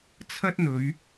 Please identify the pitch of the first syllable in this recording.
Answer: high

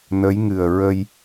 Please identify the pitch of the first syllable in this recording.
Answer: rising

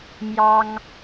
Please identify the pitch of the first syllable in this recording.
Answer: high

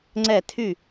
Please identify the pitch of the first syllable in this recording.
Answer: falling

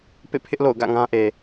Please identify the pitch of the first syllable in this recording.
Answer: falling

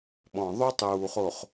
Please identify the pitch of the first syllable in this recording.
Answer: low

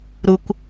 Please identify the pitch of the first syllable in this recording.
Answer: high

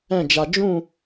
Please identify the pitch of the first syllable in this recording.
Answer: falling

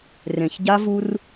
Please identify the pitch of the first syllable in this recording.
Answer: low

